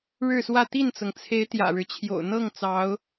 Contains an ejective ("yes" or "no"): no